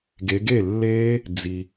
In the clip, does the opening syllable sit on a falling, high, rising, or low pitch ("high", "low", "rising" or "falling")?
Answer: rising